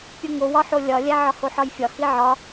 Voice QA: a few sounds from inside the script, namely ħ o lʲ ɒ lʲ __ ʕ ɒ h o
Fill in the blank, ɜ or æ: æ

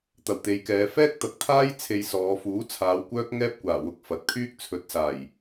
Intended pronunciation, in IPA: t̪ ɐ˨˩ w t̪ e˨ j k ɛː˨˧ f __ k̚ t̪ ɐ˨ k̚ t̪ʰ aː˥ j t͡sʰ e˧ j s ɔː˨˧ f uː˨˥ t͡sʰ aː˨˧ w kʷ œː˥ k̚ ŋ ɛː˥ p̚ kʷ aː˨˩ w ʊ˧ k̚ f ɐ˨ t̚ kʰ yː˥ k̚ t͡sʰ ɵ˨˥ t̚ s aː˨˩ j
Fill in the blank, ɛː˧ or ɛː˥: ɛː˥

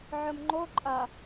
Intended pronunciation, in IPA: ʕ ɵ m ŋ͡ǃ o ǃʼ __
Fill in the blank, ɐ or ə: ɐ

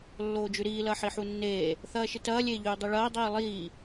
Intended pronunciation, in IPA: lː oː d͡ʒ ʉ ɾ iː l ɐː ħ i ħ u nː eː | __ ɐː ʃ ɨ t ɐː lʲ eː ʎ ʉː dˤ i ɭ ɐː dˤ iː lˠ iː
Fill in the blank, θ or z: θ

